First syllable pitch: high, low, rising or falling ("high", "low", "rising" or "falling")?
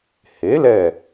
rising